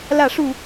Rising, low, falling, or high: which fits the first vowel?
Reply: falling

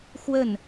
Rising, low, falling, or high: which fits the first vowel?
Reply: falling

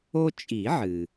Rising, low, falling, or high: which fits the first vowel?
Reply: high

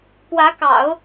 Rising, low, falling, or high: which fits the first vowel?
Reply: rising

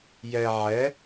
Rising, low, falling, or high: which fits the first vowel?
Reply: low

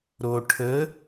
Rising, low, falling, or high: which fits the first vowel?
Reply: low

